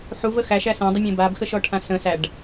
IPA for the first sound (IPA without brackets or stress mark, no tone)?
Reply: ħ